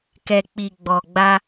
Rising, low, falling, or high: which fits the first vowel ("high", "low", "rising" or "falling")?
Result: low